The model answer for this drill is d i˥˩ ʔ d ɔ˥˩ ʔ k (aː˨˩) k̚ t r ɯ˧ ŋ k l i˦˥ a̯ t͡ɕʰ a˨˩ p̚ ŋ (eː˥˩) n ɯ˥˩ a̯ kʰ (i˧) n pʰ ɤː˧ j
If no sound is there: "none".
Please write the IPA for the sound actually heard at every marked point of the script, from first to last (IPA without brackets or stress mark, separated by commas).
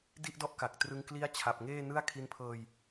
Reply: a˨˩, eː˥˩, i˧